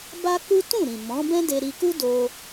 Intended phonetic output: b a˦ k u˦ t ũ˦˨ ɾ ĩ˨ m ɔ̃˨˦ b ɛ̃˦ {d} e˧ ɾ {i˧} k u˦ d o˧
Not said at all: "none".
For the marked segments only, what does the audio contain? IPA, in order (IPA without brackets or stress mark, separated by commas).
d, i˧